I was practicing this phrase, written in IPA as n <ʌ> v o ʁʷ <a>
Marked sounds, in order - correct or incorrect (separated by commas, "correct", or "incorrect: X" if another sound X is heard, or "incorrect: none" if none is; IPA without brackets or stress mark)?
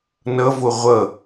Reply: correct, incorrect: ʌ